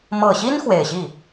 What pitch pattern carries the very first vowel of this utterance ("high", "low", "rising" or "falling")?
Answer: low